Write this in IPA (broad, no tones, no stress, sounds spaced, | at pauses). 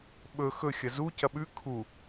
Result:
ɓ ɵ x ɵ xʲ ɐ z u c ɐ ɓ ʉ kʰ u